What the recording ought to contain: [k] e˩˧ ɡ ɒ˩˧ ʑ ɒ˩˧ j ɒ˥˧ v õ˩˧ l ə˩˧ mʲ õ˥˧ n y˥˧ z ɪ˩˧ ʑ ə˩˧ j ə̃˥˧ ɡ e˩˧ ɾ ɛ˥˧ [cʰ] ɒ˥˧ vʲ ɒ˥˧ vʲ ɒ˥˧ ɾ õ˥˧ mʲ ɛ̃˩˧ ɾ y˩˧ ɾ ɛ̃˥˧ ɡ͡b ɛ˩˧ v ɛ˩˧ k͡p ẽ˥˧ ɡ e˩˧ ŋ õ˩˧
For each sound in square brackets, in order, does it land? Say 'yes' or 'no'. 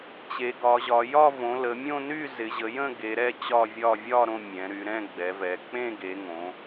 no, no

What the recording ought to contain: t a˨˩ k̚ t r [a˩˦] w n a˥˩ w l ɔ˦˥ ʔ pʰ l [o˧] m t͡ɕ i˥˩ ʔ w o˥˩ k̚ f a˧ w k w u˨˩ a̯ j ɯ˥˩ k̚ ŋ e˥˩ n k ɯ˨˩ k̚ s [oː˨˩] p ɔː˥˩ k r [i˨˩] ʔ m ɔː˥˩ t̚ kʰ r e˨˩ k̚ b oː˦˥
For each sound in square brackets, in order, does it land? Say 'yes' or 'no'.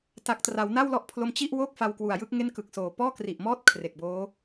yes, yes, yes, yes

